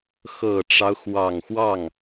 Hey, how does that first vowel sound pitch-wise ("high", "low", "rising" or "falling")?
low